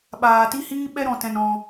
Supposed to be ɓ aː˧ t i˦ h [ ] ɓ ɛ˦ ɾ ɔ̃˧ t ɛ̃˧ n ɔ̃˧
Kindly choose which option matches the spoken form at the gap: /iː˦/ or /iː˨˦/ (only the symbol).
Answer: iː˦